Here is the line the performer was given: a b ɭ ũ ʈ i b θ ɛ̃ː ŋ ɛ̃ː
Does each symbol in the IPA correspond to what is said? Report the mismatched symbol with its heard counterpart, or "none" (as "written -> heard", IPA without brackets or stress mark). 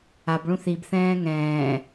ʈ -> θ